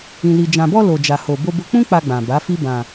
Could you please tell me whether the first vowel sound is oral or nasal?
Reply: nasal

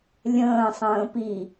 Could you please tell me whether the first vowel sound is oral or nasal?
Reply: nasal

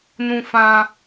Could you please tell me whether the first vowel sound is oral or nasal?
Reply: nasal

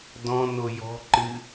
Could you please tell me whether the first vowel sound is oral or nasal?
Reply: nasal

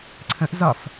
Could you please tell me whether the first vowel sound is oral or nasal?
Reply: nasal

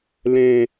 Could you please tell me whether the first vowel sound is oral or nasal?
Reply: nasal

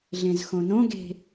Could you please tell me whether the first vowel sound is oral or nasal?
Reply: nasal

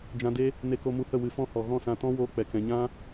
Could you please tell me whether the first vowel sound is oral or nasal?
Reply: nasal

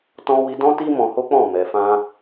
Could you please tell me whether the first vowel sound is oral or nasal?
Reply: nasal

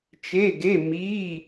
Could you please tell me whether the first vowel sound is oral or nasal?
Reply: oral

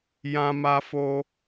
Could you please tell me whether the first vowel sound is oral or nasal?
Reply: nasal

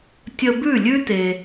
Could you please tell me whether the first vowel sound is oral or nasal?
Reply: oral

